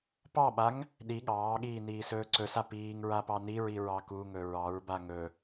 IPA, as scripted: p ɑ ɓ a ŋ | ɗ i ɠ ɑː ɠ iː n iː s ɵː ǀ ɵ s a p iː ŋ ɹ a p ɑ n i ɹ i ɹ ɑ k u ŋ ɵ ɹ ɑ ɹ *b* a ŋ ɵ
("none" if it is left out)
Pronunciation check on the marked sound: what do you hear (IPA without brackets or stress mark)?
b